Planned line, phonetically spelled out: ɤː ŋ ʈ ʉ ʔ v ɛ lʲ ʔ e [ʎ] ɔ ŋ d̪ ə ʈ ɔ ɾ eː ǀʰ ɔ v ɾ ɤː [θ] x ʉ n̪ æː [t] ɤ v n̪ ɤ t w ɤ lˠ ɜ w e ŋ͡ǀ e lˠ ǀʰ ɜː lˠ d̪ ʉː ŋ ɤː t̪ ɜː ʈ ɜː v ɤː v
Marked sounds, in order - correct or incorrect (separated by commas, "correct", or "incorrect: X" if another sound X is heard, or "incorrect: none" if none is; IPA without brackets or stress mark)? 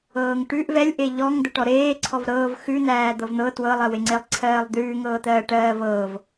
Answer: correct, incorrect: v, incorrect: d̪